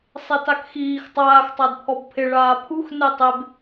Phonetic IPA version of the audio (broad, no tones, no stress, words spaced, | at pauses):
sˤetakxiːx tˤaːx tˤadpʰɔbpʰɪ ɭaːpʰux netˤeb